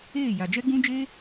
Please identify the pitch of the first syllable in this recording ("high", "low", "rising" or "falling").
falling